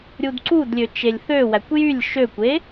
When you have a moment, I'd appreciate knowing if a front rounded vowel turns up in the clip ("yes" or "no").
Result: yes